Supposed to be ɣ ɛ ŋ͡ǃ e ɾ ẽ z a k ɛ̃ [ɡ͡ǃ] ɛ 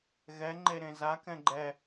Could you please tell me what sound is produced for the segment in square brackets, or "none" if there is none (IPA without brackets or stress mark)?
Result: ɡ͡ǃ